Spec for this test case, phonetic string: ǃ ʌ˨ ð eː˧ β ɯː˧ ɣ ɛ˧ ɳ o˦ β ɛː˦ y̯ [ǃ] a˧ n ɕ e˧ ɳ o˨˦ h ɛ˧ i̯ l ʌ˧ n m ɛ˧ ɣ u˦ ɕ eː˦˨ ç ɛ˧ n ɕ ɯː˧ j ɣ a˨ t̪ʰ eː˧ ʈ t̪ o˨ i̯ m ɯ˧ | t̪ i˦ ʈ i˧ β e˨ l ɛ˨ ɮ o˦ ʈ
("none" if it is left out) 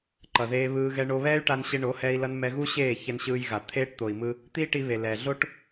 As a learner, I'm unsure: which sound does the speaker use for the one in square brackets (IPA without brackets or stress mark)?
ʈ